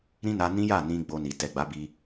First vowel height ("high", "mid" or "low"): high